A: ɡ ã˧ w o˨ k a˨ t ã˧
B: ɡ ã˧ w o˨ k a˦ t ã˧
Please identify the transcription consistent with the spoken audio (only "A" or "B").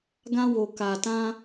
A